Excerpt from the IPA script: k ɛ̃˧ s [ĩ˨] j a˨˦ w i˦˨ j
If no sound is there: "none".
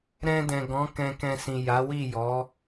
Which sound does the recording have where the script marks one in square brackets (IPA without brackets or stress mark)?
ĩ˨